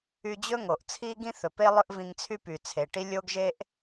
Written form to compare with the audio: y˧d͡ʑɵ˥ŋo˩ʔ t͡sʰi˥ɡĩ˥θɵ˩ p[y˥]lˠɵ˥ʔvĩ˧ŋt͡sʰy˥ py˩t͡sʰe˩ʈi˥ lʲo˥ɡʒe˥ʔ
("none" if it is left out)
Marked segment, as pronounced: e˥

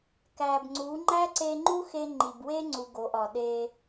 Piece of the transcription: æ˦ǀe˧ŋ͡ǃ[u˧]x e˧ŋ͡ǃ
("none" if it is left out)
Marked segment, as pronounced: u˦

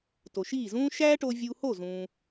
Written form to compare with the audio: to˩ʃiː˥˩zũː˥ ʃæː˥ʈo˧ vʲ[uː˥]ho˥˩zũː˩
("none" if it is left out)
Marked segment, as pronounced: uː˧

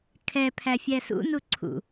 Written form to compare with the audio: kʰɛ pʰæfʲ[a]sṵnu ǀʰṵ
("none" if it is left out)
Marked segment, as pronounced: æ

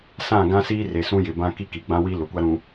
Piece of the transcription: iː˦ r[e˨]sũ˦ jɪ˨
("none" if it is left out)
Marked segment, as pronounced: e˨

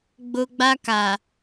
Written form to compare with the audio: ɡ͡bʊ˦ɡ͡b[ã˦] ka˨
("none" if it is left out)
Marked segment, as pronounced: a˦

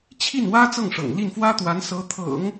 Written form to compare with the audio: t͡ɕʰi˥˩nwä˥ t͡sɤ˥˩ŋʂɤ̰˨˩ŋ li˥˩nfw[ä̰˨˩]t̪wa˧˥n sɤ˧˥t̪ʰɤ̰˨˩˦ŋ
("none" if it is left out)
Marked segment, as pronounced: ä˥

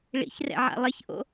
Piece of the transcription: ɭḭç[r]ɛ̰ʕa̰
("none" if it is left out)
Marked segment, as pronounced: r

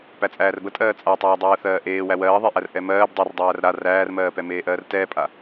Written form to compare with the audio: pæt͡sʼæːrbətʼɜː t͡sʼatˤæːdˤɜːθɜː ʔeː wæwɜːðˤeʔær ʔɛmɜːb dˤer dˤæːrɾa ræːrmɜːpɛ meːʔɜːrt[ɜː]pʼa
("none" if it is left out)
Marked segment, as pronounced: ɛː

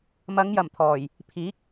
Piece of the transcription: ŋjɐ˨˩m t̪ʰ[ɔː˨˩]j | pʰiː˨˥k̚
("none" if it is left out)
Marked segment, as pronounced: ɔː˨˩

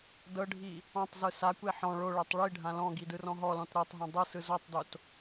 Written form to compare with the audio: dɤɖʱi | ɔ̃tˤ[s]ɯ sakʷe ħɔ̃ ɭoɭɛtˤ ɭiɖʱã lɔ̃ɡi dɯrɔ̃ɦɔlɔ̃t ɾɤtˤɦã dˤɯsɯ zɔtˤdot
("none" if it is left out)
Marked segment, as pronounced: z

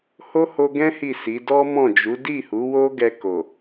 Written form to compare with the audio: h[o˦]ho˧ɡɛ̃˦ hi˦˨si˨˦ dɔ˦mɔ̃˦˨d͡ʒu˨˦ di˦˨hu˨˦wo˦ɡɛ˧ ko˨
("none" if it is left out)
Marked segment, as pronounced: o˦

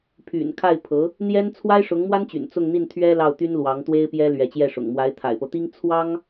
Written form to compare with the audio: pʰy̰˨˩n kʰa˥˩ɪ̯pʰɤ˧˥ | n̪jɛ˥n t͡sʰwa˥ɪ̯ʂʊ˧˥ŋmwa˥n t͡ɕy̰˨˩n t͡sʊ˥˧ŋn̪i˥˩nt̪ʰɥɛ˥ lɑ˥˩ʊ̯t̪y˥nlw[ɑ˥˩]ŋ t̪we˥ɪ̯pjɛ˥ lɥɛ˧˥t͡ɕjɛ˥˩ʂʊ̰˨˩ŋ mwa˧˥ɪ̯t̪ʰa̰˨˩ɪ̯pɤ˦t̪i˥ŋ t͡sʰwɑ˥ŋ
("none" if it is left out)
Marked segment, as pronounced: ɑ˧˥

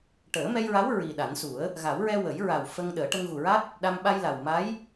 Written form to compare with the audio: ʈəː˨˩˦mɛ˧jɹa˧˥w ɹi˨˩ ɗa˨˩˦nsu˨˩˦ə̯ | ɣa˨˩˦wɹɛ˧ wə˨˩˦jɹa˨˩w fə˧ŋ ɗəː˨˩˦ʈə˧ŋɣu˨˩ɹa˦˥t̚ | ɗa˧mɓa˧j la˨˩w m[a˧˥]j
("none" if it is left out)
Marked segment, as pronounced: a˧˥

